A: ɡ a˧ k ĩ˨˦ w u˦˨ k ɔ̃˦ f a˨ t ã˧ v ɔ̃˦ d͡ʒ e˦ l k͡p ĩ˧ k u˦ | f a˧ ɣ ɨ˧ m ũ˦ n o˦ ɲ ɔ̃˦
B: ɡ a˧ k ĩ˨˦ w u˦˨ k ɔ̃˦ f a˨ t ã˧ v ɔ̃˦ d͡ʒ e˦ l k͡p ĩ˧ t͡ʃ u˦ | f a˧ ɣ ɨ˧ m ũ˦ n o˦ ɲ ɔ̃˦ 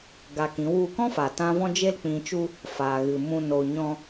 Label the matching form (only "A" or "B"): B